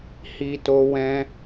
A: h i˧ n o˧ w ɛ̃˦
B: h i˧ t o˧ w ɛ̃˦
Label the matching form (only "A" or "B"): B